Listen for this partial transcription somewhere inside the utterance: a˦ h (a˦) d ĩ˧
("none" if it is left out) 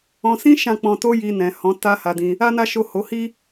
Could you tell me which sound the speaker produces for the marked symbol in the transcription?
a˧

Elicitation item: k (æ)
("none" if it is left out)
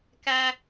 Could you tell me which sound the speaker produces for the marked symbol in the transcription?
æ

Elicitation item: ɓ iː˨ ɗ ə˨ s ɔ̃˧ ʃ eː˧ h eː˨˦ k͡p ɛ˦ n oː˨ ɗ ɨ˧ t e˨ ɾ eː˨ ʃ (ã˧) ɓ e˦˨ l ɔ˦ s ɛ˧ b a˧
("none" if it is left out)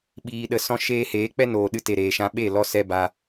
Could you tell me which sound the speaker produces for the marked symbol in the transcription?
ã˧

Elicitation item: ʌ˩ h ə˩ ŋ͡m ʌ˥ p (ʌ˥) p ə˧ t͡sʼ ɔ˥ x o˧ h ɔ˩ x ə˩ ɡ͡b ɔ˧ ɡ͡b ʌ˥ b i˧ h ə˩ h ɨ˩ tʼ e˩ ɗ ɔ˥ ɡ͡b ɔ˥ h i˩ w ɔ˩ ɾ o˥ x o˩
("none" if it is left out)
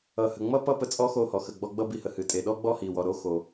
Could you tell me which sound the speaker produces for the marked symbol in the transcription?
ʌ˥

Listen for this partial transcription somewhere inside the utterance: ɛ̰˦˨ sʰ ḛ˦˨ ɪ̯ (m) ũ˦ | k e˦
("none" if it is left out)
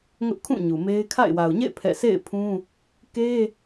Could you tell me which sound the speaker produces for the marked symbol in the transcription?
pʰ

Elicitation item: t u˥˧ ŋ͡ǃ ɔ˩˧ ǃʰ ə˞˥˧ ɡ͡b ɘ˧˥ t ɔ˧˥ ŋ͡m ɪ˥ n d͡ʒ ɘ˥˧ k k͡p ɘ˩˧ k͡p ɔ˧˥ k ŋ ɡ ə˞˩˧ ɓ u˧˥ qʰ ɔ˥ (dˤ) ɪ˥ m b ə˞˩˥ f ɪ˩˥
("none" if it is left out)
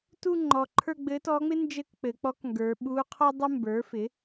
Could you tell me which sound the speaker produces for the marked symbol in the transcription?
dˤ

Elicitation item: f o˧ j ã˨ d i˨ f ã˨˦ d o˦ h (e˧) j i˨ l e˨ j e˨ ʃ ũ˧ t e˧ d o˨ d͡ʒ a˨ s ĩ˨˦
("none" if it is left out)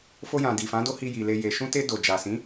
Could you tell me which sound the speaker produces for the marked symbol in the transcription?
i˧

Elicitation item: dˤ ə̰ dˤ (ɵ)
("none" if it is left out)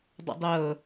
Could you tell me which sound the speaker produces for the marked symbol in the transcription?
ɤ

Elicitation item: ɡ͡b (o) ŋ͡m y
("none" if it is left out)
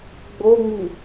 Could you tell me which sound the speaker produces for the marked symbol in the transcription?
o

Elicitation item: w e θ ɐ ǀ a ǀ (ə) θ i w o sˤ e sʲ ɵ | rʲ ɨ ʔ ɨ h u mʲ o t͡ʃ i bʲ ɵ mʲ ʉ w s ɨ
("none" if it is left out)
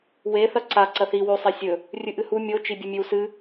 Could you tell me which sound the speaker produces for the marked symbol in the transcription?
ɐ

